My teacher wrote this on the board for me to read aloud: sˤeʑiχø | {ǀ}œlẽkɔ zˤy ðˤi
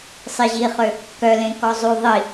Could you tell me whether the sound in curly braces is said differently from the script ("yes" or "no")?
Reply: yes